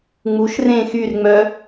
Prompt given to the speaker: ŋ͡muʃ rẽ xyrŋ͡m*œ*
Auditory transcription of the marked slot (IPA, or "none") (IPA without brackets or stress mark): œ